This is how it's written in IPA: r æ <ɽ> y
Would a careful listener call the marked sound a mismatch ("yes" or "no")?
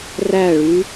yes